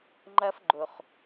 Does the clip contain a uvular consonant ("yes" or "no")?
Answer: yes